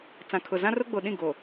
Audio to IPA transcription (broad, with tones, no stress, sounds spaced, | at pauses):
t͡s ã˨ kʰ ʊ˨ z ã˦ r ʊ˦ ɡ͡b o˨ ɗ ĩ˦˨ ɡ o˨